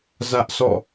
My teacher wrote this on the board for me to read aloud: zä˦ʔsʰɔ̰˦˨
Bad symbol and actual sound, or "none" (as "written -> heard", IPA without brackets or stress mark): none